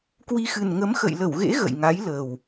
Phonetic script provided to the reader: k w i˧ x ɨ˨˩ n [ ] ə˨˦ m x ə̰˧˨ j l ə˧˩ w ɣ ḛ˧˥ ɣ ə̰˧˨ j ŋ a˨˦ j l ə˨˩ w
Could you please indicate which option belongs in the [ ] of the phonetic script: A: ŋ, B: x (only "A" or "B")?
A